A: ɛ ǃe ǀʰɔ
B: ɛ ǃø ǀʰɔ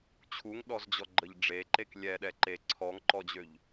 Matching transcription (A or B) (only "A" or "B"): A